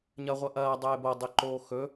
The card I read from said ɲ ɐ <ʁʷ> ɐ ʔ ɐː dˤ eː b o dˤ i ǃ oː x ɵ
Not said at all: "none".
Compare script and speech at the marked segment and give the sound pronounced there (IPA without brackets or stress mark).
ʁʷ